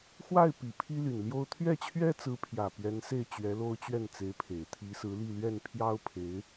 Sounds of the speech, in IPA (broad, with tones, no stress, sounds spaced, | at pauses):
x w a˥˩ ɪ̯ p i˨˩ pʰ i˥ l y˨˩ n l j o˥ ʊ̯ t̪ʰ ɥ ɛ˥˩ t͡ɕʰ ɥ ɛ˥ t͡s ɹ̩˧˥ pʰ j ä˨˩ p ɥ ɛ˧˥ n s e˥˩ ɪ̯ t͡ɕ ɥ ɛ˧˥ l o˥ ʊ̯ t͡ɕ ɥ ɛ˥˩ n t͡s e˧˥ ɪ̯ pʰ e˨˩ ɪ̯ t̪ʰ i˧˥ s ɹ̩˧˥ l i˥˧ l ɥ ɛ˥˩ n pʰ j ɑ˥ ʊ̯ pʰ e˧˥ ɪ̯